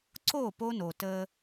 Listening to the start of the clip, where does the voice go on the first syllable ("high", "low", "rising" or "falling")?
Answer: falling